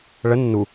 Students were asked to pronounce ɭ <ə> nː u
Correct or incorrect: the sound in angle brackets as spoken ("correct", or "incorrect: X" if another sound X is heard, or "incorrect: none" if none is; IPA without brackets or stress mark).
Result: correct